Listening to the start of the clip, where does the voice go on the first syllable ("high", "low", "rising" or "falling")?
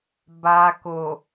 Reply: low